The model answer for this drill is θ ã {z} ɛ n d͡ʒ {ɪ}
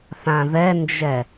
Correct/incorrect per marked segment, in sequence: incorrect: ð, incorrect: ɛ

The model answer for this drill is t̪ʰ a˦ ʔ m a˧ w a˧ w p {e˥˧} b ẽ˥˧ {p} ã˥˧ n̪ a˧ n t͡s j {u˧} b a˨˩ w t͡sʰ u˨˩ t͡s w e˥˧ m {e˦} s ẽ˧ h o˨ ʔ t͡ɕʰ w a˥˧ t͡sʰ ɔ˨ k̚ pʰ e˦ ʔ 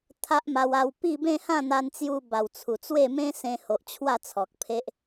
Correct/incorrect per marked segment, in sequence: incorrect: i˥˧, incorrect: h, correct, incorrect: ẽ˦

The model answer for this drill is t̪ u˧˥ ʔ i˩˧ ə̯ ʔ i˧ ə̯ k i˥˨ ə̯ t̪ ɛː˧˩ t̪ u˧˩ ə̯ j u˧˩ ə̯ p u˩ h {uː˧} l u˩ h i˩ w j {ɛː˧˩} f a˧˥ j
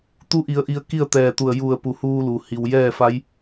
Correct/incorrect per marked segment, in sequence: correct, incorrect: ɛː˥˨

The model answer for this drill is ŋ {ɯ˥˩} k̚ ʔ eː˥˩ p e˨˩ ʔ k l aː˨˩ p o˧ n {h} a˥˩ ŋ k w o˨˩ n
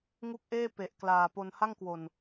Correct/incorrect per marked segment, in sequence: incorrect: u˥˩, correct

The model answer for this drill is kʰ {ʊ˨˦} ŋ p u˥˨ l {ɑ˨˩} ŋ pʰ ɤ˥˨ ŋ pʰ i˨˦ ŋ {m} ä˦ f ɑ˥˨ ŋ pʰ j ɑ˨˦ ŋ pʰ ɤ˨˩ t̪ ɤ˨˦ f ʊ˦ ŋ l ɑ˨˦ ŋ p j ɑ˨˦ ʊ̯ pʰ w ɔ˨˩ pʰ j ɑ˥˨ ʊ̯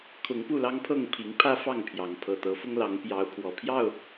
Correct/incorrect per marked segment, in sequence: correct, incorrect: ɑ˦, incorrect: pʰ

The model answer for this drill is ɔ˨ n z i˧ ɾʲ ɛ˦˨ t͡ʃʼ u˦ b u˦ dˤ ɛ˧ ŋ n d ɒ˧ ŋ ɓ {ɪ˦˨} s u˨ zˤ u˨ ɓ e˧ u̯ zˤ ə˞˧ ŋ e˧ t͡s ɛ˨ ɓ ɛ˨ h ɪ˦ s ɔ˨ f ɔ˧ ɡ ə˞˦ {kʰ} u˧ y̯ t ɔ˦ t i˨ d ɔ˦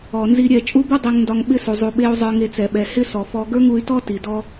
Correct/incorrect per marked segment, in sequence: incorrect: ɪ˦, incorrect: ŋ

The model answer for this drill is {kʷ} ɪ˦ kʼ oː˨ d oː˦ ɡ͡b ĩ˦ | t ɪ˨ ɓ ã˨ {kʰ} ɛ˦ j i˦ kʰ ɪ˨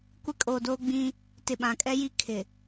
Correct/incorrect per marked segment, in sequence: correct, incorrect: kʼ

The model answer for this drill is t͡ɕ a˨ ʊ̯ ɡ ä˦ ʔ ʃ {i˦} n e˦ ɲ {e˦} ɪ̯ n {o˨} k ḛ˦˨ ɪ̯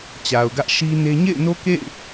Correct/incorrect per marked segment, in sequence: correct, incorrect: ḛ˦˨, incorrect: o˦

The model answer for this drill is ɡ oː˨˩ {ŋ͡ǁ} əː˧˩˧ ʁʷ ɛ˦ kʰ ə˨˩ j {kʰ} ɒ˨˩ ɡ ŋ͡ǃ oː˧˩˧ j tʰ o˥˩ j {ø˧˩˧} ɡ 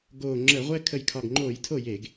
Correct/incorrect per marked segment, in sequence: correct, correct, incorrect: e˧˩˧

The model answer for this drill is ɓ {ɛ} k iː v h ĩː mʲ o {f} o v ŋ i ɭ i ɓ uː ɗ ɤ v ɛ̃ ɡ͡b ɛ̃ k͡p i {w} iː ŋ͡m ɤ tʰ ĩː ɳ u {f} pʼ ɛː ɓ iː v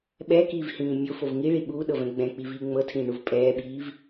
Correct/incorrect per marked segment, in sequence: correct, correct, incorrect: v, incorrect: v

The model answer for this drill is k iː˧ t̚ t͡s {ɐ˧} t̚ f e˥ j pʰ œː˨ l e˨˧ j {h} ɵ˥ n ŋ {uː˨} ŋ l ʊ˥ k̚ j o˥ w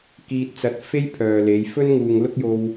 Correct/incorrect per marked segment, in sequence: correct, incorrect: f, correct

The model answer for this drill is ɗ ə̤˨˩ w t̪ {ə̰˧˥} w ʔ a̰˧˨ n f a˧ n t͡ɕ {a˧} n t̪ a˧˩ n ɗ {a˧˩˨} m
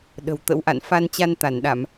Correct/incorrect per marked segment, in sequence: correct, correct, correct

